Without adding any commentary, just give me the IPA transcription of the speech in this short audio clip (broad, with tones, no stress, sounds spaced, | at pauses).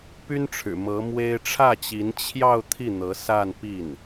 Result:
p y˥ n ʈ͡ʂʰ ɻ̩˨˩ m ɤ˧˥ m w e˥ ɪ̯ ʈ͡ʂʰ ä˥˩ t͡ɕ i˧˥ n t͡ɕʰ j ɑ˥˧ ʊ̯ t̪ʰ i˥˩ n̪ ɤ˧˥ s a˥˧ n p i˥˩ n